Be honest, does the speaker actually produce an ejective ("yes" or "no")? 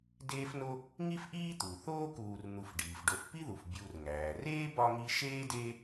no